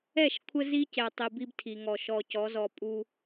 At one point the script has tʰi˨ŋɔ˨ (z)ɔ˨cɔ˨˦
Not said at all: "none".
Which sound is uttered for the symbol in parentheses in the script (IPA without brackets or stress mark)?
ʃ